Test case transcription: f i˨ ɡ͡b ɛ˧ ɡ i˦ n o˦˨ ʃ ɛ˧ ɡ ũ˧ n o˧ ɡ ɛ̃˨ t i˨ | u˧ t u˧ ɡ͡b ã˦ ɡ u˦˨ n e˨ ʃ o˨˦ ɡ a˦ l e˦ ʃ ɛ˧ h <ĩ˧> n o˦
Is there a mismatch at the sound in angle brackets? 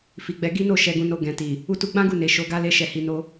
yes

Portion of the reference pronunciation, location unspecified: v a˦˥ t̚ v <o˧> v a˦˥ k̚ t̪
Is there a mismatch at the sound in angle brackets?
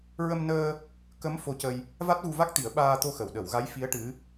yes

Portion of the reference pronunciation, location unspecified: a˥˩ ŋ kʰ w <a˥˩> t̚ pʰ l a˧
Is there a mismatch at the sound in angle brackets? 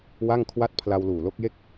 no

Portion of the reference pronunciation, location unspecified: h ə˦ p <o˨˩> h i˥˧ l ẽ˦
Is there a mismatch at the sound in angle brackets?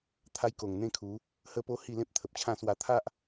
yes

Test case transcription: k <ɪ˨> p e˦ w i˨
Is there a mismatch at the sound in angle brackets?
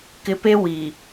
no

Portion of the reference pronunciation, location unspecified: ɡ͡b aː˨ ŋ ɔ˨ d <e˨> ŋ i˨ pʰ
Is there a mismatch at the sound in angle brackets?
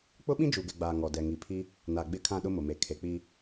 yes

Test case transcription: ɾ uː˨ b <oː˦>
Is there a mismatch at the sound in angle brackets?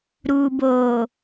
yes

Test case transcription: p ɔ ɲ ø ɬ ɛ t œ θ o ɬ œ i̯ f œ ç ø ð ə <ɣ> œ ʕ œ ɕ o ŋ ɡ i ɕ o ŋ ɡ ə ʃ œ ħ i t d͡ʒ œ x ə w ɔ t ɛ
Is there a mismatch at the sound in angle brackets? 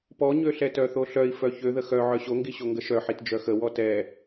yes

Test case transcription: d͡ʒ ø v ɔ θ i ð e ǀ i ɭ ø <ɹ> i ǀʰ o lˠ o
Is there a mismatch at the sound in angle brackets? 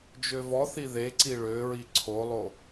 no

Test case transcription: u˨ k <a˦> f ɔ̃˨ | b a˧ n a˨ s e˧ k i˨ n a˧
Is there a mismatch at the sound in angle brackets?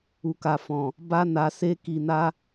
yes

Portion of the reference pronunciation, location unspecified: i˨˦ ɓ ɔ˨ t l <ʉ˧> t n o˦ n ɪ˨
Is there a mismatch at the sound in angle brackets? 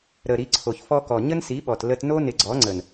yes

